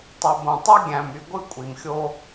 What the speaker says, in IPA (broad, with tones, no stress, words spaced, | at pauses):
tˤu˨bõ˨ tˤu˦ ɡʲæ̃˨my˨ ɡʷɯ˦˨kʷʼi˨mxʲo˦